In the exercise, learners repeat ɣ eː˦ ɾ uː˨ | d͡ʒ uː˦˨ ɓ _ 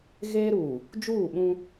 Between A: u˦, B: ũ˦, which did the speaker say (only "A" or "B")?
B